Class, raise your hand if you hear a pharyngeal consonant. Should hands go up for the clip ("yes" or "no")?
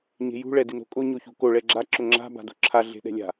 no